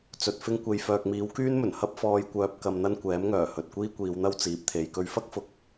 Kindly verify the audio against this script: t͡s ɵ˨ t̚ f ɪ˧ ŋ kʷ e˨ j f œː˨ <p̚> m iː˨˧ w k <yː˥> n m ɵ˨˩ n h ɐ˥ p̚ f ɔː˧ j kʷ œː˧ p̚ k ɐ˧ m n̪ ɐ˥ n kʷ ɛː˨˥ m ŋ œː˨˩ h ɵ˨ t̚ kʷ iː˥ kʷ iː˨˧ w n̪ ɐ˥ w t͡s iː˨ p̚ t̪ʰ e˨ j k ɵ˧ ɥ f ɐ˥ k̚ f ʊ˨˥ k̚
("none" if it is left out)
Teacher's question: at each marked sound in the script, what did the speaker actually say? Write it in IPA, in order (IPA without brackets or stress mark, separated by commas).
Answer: k̚, yː˥